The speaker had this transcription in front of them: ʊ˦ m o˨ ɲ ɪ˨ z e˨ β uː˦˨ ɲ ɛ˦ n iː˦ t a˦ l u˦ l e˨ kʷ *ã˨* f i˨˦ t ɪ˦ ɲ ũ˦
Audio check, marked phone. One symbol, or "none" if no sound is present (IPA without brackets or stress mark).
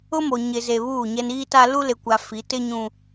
a˨